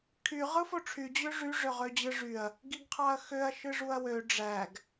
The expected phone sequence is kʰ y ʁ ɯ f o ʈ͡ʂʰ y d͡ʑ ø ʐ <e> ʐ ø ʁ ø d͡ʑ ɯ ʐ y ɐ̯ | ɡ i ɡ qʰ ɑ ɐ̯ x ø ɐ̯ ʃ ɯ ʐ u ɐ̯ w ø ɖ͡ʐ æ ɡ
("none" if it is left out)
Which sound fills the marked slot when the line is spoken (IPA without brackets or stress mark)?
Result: y